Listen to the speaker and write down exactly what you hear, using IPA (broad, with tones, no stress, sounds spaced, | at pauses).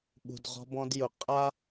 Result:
ɓ ṳ˨ d ʁ ɔ̤˧ b ɔ̃˧ d j ʊ˨ qʼ a˦